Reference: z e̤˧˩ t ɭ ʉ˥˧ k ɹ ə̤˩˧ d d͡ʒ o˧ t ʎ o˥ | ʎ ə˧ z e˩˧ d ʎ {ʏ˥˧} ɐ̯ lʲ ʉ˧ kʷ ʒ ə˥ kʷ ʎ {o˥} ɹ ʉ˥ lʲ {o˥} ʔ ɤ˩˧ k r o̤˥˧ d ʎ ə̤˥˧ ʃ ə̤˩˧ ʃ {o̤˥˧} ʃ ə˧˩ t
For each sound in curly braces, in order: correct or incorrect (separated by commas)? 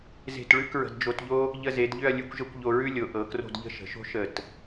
correct, incorrect, incorrect, incorrect